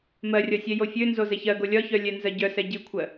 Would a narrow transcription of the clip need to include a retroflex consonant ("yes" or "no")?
no